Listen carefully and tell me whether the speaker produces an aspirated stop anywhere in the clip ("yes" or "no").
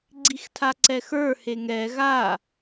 yes